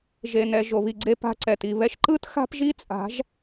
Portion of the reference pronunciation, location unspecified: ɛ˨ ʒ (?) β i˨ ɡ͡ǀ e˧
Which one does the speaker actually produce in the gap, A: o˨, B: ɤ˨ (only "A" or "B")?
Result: A